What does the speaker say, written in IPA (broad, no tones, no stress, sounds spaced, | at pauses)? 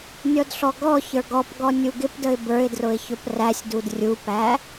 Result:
nʲ ɔ d ɬ ɔ ɡ ɔ ç ə˞ ɡ ɔ p ɡ ɔ nʲ u ɡ ɪ p d ə ɪ̯ b ə˞ ɪ̯ d r ʊ ɪ̯ ç ʊ p r æ sʲ d u d rʲ u p æ